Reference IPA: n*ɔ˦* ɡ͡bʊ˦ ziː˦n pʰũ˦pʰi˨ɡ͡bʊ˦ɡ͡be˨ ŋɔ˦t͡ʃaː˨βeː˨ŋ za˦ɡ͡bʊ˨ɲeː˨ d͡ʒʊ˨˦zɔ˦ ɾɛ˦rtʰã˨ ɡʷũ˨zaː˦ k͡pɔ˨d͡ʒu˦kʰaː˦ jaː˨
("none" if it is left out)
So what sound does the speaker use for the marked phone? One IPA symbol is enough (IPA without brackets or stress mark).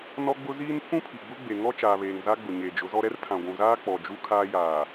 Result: ɔ˦